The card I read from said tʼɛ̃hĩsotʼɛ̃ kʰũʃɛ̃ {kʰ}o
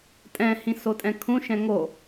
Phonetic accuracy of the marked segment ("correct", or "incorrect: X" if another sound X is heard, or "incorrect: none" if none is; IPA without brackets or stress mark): incorrect: ŋ